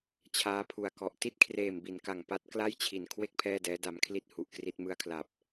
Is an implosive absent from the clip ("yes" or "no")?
yes